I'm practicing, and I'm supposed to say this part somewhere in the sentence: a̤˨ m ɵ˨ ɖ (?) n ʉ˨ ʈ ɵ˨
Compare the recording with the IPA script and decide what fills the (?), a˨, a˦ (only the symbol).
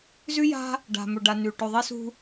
a˨